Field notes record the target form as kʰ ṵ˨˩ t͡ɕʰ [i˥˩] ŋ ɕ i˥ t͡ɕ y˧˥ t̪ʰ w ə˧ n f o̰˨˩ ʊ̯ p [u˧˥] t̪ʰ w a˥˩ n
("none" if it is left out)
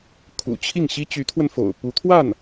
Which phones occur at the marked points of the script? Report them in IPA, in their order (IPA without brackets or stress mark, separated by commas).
i˥˩, u˧˥